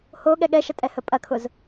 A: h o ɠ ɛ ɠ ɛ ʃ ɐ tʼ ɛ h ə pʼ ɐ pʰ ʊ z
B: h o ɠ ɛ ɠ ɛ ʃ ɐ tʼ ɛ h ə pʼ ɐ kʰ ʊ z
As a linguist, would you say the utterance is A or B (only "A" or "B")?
B